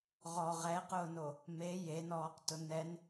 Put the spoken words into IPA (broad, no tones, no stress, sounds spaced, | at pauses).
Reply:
ʁ ɔ ʁ ɛ q ʊː n o | m e j e n ɔː q t ʊ n ɛ n